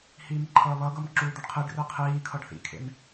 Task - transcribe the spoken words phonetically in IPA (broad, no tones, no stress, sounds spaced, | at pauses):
h iː m ǃʰ ʌː β ʌ ɡ ʌ m ǁ uː d̪ ʌ ɖ qʰ i ɖ r e qʰ iː kʰ ʌ ɖ θ ḭ kʰ ḛ m